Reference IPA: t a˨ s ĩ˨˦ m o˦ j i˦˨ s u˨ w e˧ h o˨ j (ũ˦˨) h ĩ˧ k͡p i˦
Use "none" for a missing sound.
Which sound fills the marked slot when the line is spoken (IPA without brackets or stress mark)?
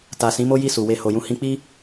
ũ˧